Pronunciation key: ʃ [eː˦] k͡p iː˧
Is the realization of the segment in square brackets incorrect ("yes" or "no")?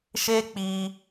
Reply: no